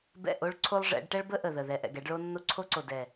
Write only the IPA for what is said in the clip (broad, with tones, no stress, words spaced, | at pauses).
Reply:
bɛ̰˦˨ ʔo˦ɭ ǀʰo˦lˠʐɛ̰˨˦ɖ ʈɛ˦ɭbə˦ ʔə˨ðə˨ðɛ˨ ʔɛ̰˨ɡɛ˨˦ɖɭo˦ nːo˦ǀʰo˦ǀo˨ dɛ˨